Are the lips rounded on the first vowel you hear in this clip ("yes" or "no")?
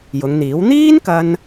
yes